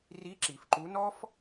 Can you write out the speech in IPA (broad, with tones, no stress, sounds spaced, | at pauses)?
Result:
r i˧˥ ǁ i˩ f ǃ u˧˥ n ɔ˥ f